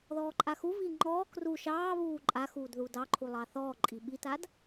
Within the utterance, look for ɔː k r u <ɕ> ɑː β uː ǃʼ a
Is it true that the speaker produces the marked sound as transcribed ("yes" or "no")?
no